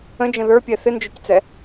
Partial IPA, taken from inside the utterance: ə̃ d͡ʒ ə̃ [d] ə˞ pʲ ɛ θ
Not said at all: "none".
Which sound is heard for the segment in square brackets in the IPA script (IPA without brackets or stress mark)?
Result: ð